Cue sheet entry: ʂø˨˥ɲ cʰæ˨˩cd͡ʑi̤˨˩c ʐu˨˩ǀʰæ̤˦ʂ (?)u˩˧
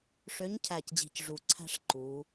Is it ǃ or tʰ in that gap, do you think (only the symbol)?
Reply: ǃ